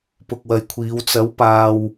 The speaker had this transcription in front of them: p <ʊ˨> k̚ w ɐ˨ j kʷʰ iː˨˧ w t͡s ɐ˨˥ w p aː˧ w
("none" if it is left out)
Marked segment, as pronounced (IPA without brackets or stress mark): ʊ˨